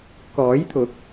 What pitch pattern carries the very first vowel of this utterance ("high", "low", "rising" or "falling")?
rising